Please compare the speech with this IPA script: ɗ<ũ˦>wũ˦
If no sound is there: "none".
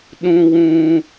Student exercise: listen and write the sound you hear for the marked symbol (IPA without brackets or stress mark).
ũ˦